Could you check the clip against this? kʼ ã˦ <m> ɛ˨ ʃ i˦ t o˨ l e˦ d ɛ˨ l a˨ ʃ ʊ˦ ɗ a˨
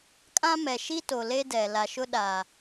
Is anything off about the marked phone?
no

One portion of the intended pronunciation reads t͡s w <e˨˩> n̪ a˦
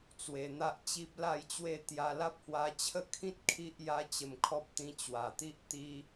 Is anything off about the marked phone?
yes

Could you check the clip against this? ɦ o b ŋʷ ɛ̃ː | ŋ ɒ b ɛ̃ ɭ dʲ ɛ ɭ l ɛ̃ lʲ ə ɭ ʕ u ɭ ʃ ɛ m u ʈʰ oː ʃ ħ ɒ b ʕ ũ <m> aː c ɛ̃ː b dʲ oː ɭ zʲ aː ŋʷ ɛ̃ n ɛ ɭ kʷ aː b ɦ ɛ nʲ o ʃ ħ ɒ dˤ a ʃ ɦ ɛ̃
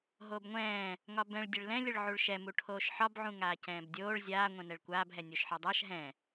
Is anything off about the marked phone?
yes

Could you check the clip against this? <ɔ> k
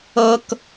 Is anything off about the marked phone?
yes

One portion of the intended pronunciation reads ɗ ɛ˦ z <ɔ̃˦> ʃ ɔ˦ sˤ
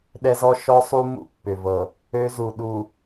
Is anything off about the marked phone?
yes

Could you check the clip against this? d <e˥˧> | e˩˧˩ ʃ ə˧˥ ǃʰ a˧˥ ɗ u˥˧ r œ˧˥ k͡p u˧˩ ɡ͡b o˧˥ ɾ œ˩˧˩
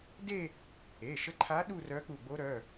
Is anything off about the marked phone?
no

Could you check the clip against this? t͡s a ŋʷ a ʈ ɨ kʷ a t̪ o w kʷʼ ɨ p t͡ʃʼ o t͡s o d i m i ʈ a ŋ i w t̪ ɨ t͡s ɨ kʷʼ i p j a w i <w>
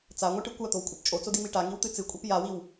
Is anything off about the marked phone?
no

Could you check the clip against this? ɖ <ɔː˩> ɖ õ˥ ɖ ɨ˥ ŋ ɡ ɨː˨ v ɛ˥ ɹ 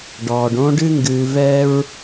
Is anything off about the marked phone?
no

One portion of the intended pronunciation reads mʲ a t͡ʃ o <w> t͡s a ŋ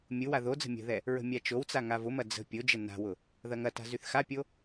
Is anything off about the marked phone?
no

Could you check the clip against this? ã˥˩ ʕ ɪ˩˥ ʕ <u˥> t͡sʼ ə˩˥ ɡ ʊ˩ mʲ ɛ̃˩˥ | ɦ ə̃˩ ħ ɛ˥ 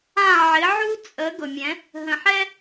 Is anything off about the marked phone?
no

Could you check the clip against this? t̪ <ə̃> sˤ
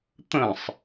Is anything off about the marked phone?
no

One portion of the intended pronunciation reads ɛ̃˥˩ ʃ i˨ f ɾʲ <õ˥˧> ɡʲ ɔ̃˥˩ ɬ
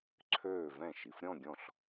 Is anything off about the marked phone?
yes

